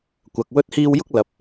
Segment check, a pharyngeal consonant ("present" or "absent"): absent